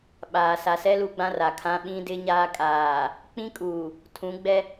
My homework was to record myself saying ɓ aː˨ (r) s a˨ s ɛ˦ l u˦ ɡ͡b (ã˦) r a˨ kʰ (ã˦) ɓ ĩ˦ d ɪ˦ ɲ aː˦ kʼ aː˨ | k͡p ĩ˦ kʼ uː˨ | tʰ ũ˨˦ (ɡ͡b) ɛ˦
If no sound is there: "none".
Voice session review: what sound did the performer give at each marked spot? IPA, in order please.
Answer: none, ã˦, ã˦, ɡ͡b

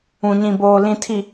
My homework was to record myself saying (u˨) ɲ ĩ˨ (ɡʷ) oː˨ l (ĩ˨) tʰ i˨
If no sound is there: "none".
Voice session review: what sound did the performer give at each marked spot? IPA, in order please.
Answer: ũ˨, b, ĩ˨

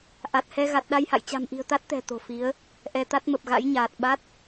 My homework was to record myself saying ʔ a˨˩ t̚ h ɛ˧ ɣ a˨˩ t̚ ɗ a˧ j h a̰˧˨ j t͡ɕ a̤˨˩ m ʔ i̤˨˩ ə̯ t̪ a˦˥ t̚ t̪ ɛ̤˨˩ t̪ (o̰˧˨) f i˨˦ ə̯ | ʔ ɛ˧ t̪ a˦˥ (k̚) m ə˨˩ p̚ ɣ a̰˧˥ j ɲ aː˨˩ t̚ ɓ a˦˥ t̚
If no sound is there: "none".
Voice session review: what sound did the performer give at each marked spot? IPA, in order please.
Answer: o̤˨˩, t̚

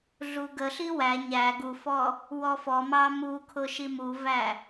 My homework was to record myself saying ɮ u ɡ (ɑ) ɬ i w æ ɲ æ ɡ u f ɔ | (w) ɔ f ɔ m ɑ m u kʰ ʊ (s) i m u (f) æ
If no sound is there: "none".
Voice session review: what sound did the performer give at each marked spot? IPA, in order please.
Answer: ə, w, ʃ, v

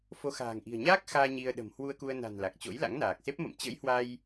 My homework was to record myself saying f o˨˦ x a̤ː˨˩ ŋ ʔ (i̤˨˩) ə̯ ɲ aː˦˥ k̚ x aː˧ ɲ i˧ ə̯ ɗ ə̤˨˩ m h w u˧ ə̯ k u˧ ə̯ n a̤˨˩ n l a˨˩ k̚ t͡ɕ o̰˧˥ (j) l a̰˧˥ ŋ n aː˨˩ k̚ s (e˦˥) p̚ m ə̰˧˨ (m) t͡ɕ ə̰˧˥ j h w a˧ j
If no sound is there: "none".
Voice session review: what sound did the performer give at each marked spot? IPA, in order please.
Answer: i̤˨˩, j, e˦˥, m

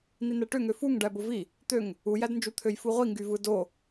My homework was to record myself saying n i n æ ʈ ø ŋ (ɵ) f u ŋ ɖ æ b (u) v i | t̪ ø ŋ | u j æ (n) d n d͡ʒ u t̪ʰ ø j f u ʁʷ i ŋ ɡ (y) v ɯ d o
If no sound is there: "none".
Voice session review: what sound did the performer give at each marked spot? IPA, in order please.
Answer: ø, o, none, y

